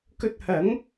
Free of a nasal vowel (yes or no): yes